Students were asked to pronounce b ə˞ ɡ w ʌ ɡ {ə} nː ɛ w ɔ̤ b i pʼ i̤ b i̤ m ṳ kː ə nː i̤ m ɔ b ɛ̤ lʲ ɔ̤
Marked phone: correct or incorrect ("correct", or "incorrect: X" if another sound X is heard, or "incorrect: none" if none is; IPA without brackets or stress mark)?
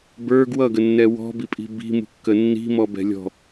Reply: correct